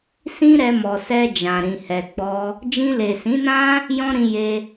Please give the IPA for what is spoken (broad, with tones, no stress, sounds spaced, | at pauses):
s ĩ˦ ɾ ɛ˧ m ɔ˨ s ɛ˧ d͡ʒ ã˨ ɾ ĩ˨ h ɛ˨ ɡ͡b ɔ˧ | d͡ʒ ĩ˧ l e˨ s ĩ˨˦ n ã˦ | j ɔ̃˦ ɾ ĩ˧ j e˧